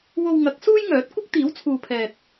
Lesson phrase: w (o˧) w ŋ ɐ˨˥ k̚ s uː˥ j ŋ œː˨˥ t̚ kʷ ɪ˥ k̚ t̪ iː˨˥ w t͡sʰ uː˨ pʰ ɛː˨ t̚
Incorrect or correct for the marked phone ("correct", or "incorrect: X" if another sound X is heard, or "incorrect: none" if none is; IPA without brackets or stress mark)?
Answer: correct